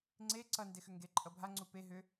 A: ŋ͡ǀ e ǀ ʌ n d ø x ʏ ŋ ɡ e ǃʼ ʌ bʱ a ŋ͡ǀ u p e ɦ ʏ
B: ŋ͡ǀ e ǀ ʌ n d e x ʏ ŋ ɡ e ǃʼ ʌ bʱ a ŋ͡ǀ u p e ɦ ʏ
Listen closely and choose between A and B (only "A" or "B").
B